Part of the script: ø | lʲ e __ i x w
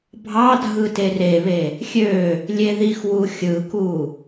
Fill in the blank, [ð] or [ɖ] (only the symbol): ð